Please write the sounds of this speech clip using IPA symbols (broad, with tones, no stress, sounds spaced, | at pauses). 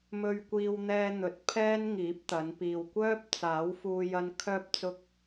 m ɵ˧ ɥ kʷ iː˧ w n̪ ɛː˧ n̪ ɵ˨ t̚ pʰ ɛː˥ n ŋ iː˨˥ p̚ t̪ ɐ˨˧ n p iː˨ w kʷ œː˥ p̚ t͡s aː˨˥ w f uː˧ j ɐ˧ n kʰ œː˧ p̚ t͡s ʊ˧ k̚